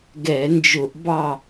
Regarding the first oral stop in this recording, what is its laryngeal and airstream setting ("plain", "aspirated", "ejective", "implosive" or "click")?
plain